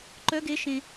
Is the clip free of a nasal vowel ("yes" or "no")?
no